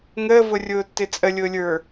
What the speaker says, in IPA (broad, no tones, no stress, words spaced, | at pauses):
ŋəːvʊrʲʊːtːɪ t͡sʼəlʲʊːlʲə˞